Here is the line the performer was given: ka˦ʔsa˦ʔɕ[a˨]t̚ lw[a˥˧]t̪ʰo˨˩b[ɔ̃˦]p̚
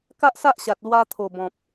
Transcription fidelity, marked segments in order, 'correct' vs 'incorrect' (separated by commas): correct, incorrect, incorrect